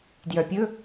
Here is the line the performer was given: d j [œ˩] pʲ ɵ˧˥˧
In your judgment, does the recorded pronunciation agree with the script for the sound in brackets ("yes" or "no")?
yes